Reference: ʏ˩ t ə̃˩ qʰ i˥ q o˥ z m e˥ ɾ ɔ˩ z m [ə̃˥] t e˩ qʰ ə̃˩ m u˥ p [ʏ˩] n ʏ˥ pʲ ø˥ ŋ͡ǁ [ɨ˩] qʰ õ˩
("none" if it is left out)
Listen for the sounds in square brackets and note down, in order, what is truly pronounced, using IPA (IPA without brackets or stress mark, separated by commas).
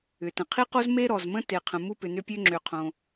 ə̃˥, ʏ˩, ʏ˩